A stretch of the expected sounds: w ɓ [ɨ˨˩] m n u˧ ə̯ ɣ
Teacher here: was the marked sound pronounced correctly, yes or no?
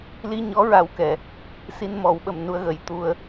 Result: no